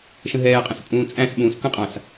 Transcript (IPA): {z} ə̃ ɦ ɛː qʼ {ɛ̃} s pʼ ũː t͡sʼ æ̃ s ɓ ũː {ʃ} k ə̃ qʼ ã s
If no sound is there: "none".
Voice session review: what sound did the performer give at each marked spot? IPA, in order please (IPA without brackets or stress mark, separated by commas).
ʃ, ə̃, s